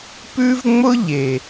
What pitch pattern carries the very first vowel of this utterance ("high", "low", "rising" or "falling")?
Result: high